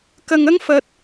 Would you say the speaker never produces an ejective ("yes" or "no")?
yes